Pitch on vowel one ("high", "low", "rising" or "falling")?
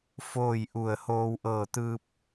falling